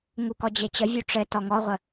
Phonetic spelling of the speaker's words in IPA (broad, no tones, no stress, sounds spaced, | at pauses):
ŋ u k ɔ d͡ʑ e t͡ɕ ə vʲ u ʈ͡ʂ ɘ t ɔ ŋ ɔ ʁʷ ə